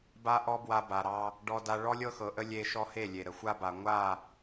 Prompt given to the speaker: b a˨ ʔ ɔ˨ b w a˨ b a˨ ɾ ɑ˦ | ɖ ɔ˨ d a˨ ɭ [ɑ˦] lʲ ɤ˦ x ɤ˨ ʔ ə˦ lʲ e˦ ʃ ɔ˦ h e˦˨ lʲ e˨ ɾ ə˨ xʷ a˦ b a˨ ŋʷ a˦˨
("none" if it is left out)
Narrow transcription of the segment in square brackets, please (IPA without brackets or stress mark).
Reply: ɔ˦